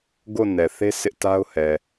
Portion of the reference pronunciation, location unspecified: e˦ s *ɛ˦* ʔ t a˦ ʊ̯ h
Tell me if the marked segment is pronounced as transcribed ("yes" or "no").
no